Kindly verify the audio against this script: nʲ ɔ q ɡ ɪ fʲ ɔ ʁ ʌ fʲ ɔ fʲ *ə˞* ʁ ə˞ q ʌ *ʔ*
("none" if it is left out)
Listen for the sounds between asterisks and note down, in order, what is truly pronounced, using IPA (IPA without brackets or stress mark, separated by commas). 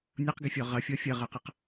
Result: ʌ, q